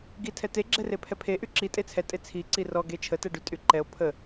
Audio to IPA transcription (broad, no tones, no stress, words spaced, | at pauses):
ɡitʰɛte ɡ͡ǁɛrepʰɛpʰe ʔyǁi tʼet͡sʰɛ tʼet͡sʰi ǀirɔ ɡet͡ʃʰə tɛɖytʼyǃɛo̯ pʰə